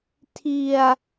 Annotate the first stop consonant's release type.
aspirated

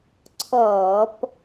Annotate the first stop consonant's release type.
click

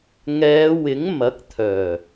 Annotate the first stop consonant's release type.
plain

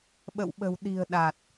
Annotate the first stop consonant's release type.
implosive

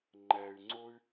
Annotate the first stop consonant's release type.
click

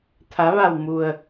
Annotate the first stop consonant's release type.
aspirated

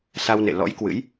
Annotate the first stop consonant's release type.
plain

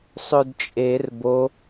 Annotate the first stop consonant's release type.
plain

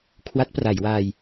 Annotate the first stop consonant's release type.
aspirated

